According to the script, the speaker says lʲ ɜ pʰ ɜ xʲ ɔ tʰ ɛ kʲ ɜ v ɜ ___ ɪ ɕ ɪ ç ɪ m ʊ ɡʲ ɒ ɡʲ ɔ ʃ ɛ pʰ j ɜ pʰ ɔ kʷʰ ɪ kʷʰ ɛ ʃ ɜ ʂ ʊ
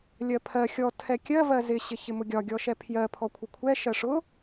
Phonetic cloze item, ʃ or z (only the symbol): z